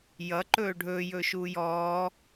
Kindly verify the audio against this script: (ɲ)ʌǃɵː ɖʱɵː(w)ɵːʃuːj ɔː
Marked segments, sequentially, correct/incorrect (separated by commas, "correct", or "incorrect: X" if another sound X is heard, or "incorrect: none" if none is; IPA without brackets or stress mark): incorrect: j, incorrect: j